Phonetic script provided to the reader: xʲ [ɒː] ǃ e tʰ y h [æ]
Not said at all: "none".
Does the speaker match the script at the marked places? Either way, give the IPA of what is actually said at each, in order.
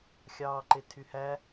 ɑː, æ

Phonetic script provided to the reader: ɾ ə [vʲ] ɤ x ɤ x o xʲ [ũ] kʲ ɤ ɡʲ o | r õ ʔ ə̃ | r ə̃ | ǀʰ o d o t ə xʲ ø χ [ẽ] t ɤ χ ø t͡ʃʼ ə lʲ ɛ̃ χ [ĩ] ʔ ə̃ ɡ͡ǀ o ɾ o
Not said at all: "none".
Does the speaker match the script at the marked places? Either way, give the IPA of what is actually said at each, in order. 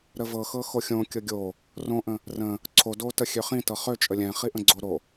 v, õ, ĩ, i

